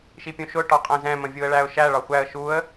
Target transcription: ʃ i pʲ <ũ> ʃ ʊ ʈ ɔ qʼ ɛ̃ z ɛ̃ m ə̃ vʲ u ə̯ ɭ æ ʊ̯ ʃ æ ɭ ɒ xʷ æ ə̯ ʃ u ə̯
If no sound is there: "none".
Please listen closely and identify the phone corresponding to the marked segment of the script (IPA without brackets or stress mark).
ũ